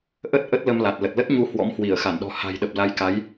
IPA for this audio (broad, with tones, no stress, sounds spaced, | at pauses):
ʔ ə˦˥ t̚ ʔ ə˦˥ t̚ l ə˧ m l a˨˩ t̚ l ə˨˩ t̚ l ə˦˥ t̚ ɲ u˧ h w ɔ̰˧˥ m h w i˧˩ ə̯ x a˧˩ n ɗ ɔ̤˨˩ h a̤˨˩ j ɗ ə˨˩ p̚ l a˨˦ j k a˨˦ j